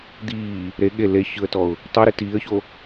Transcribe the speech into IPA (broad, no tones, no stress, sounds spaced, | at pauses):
d̪ iː | ɾ e ɠ e l e ç ɯ ə̯ t ɔ ʊ̯ | tˤ i ɾ i t iː ə̯ ç o